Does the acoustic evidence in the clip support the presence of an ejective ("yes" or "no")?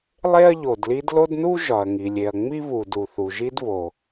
no